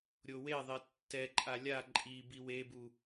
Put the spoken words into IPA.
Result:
ɾʲoweðˤe tːɛǃʼa lʲa ǃʼi biwebu

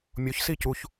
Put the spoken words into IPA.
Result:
mʲoçsi cuç

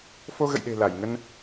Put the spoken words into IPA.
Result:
fo˧ɣə̰˧˨jɗe̤˨˩ la˧˩jŋə˧n

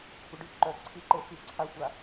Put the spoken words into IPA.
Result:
kʷʼəɖy ǃœ ǀʰiǃe fy ǀʰaxʷa

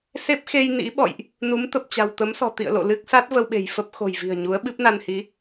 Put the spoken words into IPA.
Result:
se˦˥p̚xe˧j nḭ˧˥ɓɔ̰˧˨jʔ | nu˨˦mt̪ə˨˩p̚ t͡ɕa̤˨˩wt̪ə˨˦msɔ̤˨˩t̪ḭ˧˨ə̯ lo̰˧˨lɨ˦˥k̚ sa˦˥t̚ və˧wɓe̤˨˩jfə˦˥p̚ xo̤˨˩jvi̤˨˩ə̯ɲu˨˦ə̯ ɓɨ˦˥p̚na˧nhi˨˦

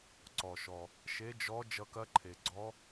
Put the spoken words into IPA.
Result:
ǀɔ˩ʃɔ˩ | ʃe˨˦d͡ʒɔ˨˦ d͡ʒʌ˨˦kɐ˨˦ǃʰe˩ ɡ͡ǀɔ˨˦

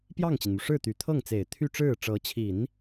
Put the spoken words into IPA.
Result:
pjɑ˥˩ŋt͡ɕi˩nmu˩ ʂɻ̩˥˩t̪y˨˩ t̪ʰɤ˥˩ŋt͡se˨˩ɪ̯t̪ʰy˥˧ ʈ͡ʂɻ̩˥˩ʈ͡ʂɤ˧˥t͡ɕʰi˨˩˦n

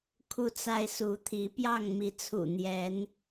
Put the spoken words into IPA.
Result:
kʰu˦t͡sa˦ɪ̯su˨˦t̪ʰi˨˦ pjɑ˥˨ŋmi˨˦t͡sʰṵ˨˩ n̪jɛ˨˦n

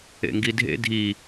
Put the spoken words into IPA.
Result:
ḛŋɡidʱḛ dʱi

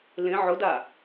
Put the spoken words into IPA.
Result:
lẽ ʕʊda

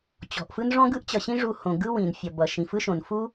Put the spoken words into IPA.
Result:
t͡ɕɔ̤˨ʔfɯ˦n ʐɔ̃˦ɡɯ˦ʔt͡ɕʌ˨ɕĩ˦ ʐu˧hõ˨ɡɯ˦ wĩ˨nfʲʌ˨bʌ˨ ʃĩ˨fɯ˦ʃõ˨n fu˦

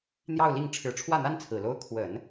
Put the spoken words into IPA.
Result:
n̪jɑ˥˧ʊ̯li˥˩ŋ ʈ͡ʂʰɻ̩˨˩ʈ͡ʂʰwä˥˩n̪a˥n t͡sʰɹ̩˨˩lo˥ʊ̯ kʰwə˨˩˦n

